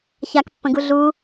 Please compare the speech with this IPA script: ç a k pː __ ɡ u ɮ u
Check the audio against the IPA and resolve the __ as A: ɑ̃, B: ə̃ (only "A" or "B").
B